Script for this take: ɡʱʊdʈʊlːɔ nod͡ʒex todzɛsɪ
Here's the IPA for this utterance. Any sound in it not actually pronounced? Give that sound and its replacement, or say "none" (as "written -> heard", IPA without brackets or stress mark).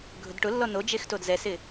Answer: none